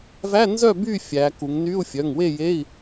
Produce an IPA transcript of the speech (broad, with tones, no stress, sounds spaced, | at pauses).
v æ˧˥˧ n z œ˥˨ b y˥˨ fʲ æ˩˧ k u˩˧ ŋ n y˧˥˧ u̯ fʲ œ˩˧˩ ŋ w e˥˨ j e˧˥˧ i̯